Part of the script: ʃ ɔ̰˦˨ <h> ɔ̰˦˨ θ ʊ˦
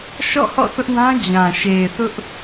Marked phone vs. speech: correct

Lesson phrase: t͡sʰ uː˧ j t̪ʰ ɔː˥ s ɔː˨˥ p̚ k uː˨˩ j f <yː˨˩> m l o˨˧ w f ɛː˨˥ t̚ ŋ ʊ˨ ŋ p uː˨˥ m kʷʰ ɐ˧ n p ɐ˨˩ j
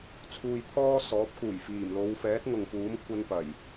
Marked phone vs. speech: incorrect: iː˨˩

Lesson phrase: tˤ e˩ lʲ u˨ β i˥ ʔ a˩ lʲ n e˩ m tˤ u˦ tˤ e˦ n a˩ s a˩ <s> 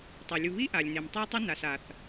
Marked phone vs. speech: incorrect: θ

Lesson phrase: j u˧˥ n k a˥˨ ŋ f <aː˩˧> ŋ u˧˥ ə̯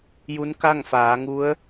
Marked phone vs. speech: correct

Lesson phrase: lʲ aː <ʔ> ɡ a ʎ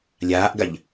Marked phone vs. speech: correct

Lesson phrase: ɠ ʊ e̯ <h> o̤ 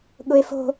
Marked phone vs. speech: incorrect: f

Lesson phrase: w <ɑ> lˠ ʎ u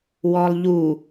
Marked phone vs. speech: incorrect: ɔ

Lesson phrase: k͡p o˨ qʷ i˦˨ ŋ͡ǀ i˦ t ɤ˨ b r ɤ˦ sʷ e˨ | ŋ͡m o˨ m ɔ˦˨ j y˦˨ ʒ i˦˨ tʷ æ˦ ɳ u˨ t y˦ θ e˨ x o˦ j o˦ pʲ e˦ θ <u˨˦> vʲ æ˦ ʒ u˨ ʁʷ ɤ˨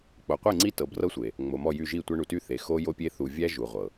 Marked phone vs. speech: incorrect: u˨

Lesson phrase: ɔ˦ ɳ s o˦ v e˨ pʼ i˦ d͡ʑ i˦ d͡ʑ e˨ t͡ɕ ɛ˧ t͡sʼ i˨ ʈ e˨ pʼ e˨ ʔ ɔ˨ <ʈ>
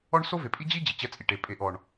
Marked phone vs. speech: incorrect: ɳ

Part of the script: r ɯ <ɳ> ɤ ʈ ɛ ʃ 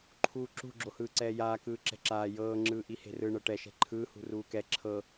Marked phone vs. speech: correct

